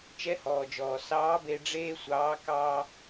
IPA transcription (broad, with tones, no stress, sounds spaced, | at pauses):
t͡ʃ ɛ˧˥ h ɔː˩ d͡ʒ ɔː˩ s ɑː˧˥ b e˧ ɖ͡ʐ eː˥ sʷ ɑː˧˥ k ɑː˥